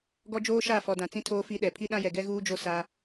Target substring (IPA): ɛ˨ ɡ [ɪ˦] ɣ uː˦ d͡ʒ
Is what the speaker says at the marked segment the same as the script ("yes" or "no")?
no